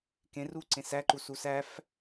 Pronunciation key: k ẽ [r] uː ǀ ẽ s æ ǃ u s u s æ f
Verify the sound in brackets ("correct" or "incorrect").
correct